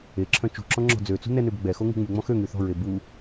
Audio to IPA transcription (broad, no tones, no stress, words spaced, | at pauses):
eǁʰœ̃ t͡ʃṳǁɔ̃ ŋ͡ǁɔ̤d͡zøt͡sṳ nɛnøb ɡ͡bɛxo ŋṳŋ͡myŋ͡mɔ̃ xø ŋyθɔ̤ɹe bu